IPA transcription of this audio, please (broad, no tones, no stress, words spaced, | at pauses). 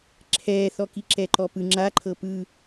ǁʰɛːθɔki ǁɛǃɔpɯ ŋ͡ǁa ǃʰɤpɯ